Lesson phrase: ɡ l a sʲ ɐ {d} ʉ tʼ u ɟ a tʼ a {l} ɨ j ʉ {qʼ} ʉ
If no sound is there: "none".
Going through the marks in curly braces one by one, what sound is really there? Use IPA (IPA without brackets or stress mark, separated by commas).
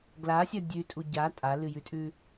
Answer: dʲ, l, tʼ